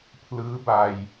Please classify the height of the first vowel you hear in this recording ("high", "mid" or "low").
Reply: high